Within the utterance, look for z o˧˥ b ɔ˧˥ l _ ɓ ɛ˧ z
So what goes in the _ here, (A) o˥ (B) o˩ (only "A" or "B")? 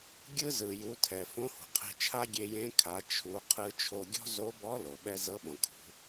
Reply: B